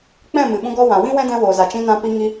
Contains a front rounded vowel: no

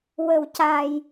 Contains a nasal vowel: no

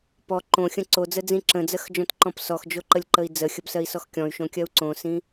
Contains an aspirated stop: no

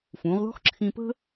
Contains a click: yes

